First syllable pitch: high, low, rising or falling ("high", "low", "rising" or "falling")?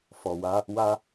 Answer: low